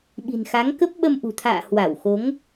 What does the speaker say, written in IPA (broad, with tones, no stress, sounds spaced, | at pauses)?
ɓ i̤˨˩ n x a˨˦ ŋ k ə˦˥ p̚ ɓ ə˧ m ʔ ṳ˨˩ t̪ʰ a̰ː˧˨ h w a˧˩ w x o˨˦ ŋ